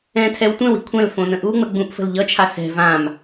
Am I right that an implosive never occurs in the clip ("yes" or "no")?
yes